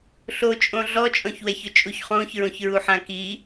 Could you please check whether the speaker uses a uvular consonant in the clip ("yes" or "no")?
yes